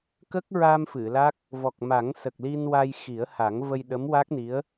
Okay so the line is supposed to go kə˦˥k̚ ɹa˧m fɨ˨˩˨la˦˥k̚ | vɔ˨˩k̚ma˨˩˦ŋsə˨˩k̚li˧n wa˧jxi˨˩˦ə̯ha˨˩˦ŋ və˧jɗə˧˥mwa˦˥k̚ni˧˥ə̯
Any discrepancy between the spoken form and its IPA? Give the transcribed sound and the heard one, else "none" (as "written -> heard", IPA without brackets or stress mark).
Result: none